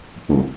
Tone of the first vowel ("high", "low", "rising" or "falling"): low